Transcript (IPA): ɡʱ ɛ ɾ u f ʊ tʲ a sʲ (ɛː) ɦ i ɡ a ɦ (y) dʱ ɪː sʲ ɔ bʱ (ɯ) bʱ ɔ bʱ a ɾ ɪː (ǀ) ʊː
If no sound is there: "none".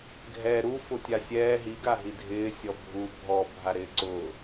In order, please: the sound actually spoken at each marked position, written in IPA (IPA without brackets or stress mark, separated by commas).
ɛː, i, u, ǀ